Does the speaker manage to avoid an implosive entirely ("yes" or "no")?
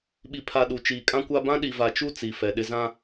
no